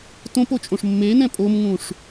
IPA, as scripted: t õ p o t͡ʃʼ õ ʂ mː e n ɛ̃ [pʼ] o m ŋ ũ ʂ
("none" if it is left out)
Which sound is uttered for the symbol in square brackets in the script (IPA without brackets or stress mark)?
pʼ